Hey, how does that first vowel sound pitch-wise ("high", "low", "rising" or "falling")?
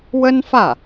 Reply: high